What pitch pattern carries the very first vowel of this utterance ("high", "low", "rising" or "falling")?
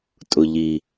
low